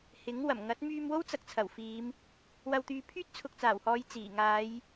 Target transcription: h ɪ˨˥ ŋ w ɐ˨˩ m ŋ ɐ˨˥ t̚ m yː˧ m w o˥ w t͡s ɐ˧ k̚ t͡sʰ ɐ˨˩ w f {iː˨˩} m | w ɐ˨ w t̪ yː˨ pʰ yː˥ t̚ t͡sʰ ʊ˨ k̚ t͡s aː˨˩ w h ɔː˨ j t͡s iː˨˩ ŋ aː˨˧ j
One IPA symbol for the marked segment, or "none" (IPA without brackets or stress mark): iː˨˧